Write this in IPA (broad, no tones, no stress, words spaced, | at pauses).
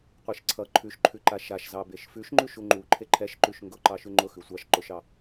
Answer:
qʷeʃǀʰʌ ǃʰʉʃǃʰʉǃa ʃaʃzɑ beʃfʉʃŋ͡ǃʉʃ uŋ͡ǃu ǃʰeǃʰɛʃǃʉʃ ŋɡʊǃɑʃʉ ŋ͡ǃʊ xʉsʷɑʃ ǃʊʃɑ